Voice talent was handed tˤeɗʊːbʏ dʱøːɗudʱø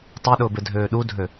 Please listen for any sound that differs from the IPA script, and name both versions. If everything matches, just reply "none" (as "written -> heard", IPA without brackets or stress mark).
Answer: ʏ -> ɪ